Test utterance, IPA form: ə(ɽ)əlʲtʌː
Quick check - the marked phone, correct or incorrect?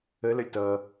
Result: incorrect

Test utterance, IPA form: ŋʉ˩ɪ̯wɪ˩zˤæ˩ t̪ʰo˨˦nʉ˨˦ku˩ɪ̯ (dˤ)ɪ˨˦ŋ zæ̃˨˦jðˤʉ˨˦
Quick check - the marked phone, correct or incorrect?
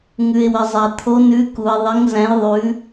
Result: incorrect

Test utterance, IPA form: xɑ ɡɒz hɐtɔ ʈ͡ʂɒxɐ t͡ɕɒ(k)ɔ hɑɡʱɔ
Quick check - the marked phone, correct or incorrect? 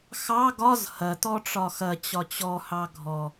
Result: incorrect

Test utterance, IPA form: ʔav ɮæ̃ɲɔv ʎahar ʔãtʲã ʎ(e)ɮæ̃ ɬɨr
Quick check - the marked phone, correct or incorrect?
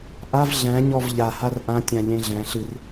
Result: incorrect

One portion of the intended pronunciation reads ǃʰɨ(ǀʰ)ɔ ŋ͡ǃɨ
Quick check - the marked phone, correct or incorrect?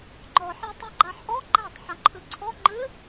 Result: correct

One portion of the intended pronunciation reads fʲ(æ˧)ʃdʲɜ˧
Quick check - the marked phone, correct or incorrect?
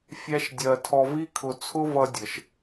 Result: incorrect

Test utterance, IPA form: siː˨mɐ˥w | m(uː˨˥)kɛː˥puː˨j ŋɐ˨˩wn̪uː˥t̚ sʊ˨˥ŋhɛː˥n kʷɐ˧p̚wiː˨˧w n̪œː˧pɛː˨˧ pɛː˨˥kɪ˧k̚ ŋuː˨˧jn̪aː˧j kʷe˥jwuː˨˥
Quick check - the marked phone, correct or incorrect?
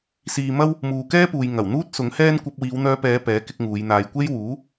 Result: incorrect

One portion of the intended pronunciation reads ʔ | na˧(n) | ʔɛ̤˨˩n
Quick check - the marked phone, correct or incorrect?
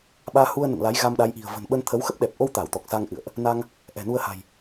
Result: incorrect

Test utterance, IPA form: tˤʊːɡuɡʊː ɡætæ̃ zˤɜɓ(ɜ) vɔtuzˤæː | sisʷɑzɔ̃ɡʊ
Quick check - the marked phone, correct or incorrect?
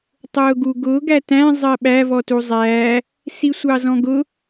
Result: incorrect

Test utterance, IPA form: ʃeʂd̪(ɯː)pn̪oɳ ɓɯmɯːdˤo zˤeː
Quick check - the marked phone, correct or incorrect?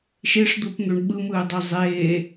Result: incorrect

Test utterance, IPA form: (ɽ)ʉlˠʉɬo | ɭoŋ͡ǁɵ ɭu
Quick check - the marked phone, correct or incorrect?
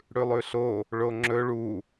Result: correct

